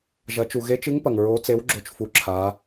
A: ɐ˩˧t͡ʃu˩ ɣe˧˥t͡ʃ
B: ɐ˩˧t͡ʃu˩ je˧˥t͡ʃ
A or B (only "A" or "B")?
A